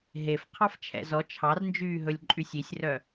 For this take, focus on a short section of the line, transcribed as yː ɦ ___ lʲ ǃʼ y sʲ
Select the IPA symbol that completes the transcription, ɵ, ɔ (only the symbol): ɵ